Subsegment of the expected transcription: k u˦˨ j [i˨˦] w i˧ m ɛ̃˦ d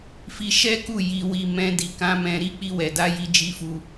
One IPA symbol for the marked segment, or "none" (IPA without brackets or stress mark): i˧